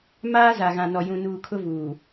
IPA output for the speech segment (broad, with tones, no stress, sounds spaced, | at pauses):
m aː˦ z a˨ ɣ ã˨ n ɔ˨ j ũ˨ n uː˨ kʰ ʊ˦ v uː˨